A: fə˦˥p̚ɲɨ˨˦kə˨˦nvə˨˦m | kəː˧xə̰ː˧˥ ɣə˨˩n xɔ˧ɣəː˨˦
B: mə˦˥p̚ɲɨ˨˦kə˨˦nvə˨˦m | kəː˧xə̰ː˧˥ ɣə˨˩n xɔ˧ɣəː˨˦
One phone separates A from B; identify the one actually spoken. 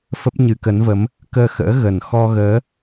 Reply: A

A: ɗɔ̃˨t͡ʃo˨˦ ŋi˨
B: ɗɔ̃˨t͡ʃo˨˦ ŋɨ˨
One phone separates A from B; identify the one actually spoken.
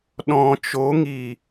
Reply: A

